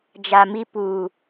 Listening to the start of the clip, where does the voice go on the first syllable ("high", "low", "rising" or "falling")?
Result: low